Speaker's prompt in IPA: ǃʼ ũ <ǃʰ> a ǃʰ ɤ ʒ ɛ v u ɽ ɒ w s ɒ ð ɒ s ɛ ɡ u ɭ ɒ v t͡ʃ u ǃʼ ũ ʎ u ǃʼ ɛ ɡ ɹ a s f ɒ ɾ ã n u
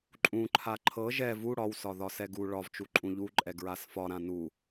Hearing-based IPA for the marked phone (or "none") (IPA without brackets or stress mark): ǃʰ